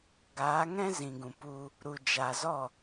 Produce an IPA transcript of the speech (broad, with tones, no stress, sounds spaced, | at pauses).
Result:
ɡ aː˨˦ ŋ ɛ̃˦ z ĩ˨ ɡ ũ˨ p u˧ | ɾ u˨ d͡ʒ a˨ z ɔ˦˨